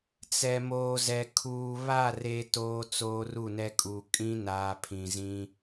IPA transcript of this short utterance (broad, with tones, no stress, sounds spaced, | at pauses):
t͡s ɛ˨ m oː˨ z ɛ˨ kʰ uː˨ β a˦˨ r eː˦ t oː˦ t͡s oː˦ r u˦˨ n ɛ˦ kʼ u˨ kʼ ĩ˦ n aː˨ pʰ ĩ˨ z ĩ˦